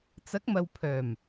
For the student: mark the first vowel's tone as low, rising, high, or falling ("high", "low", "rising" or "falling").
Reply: rising